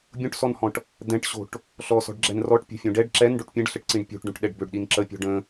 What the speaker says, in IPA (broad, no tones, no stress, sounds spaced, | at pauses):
bʲ õ ʈ s ɔ n h ɔ̃ ʈ | d̪ ɛ̃ ʈ ɕ o̤ ʈ | ɬ ɔ s ɔ̤ ɖ ɡ͡ǁ ɛ n r ɔ ʈ pʲ o̤ fʲ õ ɖ ɛ ɖ ǁ ɛ n ɖ o ʈ pʲ ɛ̃ ɖ ɬ ə ʈ ǀ ĩ ɖ pʲ o̤ ʈ ɖ õ ʈ ɗ ɛ ɖ b ø ɖ ɗ i n ǁ ə pʲ ɔ̤ ɖ ə̃